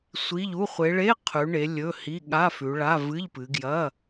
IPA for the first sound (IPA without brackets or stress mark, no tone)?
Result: sʷ